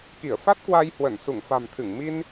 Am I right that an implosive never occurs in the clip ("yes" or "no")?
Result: yes